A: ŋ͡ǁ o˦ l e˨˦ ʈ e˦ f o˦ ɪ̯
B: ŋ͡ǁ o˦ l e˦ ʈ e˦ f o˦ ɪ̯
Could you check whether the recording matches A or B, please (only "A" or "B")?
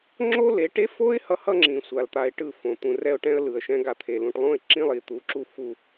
A